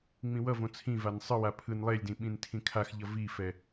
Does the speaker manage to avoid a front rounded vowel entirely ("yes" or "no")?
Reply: yes